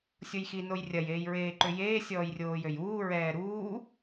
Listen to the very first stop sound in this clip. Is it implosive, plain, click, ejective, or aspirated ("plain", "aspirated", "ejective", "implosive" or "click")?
click